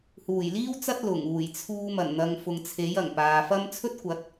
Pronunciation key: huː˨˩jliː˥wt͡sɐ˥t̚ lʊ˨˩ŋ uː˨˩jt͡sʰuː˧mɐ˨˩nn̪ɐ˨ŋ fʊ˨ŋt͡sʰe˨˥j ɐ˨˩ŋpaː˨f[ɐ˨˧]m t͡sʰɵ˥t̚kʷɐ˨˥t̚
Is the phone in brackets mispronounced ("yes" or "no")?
yes